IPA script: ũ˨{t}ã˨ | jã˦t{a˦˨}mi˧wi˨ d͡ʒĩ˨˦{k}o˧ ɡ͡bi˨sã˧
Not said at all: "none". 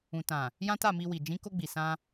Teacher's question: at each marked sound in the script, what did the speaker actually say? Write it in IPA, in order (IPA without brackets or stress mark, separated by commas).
t, a˦˨, k